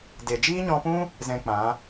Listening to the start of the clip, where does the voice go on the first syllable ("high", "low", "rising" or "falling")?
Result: low